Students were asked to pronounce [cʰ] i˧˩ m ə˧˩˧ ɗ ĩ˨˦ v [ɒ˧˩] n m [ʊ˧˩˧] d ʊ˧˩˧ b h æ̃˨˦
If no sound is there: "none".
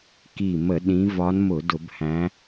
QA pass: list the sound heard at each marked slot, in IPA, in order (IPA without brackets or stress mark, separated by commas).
k, ɒ˨˦, ʊ˧˩˧